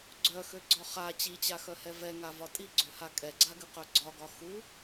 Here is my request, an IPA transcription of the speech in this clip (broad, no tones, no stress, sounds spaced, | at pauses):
ɡ͡ǀ œ x ø ɡ͡ǀ ɒ χ a t͡ɕ i t͡ɕ a x œ h ɛ v ɛ ŋ a v ɒ tʼ i ɡ͡ǀ ø h a kʼ ɛ ɡ͡ǀ a ɡ ɨ q œ ɡ͡ǀ ɒ ɡ ɒ x u